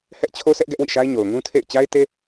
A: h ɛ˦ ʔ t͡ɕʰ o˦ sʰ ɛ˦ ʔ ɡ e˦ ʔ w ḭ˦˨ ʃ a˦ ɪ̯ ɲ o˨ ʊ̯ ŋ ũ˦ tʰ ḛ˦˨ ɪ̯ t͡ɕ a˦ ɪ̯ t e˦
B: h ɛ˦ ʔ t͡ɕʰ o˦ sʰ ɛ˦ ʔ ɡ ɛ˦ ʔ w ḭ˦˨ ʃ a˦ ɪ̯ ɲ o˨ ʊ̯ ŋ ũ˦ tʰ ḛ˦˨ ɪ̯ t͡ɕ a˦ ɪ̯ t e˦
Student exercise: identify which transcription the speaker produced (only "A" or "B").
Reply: B